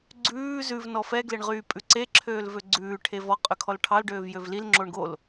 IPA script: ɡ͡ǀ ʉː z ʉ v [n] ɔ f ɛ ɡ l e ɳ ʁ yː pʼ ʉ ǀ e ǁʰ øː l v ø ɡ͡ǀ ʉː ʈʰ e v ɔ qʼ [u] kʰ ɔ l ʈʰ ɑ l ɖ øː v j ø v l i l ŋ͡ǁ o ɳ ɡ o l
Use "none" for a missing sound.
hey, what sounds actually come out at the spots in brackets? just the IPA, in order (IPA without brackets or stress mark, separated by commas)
n, ø